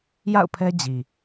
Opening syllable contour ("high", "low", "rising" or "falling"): falling